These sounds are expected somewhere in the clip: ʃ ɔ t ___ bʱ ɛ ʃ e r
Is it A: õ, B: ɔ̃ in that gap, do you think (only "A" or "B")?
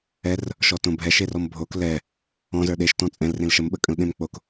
A